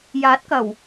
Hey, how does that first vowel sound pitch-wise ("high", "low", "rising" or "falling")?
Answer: rising